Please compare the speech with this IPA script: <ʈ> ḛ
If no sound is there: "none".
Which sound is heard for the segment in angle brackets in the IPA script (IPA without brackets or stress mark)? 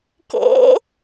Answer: k